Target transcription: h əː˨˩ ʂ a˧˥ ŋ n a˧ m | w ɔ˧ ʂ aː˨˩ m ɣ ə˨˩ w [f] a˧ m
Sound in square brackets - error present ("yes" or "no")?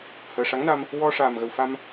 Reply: no